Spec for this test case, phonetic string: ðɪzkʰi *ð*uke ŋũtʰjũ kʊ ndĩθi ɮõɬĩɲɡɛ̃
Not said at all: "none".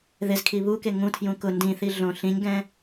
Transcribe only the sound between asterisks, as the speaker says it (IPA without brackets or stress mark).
β